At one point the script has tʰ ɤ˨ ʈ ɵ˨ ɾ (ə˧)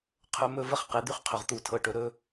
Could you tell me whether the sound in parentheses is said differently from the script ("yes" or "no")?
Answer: yes